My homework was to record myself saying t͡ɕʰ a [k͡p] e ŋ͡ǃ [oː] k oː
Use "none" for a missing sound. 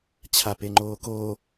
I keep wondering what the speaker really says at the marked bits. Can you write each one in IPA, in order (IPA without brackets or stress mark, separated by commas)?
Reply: p, oː